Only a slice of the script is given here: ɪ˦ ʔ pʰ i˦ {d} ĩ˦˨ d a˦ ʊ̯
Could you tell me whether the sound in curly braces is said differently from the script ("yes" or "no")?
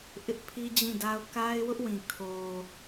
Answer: yes